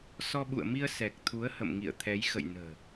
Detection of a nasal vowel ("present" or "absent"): absent